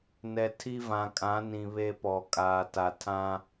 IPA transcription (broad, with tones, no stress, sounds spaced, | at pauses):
n ɛ˨ tʰ i˦ v ã˨ kʼ ã˨˦ n ĩ˨ β e˦ p ɔ˨ kʼ aː˨ t a˨ tʰ ã˦